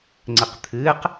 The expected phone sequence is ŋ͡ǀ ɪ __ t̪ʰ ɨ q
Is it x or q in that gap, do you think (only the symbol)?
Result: q